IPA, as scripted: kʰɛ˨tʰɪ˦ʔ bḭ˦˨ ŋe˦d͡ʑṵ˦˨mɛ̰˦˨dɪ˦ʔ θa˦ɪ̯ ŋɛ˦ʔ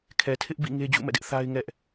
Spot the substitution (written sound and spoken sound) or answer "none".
none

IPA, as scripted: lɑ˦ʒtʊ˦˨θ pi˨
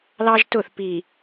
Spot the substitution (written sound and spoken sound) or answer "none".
none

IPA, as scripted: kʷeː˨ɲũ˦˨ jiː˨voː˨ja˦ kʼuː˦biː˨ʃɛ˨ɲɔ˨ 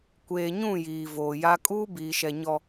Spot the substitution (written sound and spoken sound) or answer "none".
none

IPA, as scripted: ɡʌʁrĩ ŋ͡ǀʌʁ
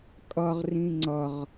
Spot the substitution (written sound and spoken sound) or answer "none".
ɡ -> kʼ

